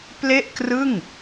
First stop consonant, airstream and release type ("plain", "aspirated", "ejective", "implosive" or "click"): plain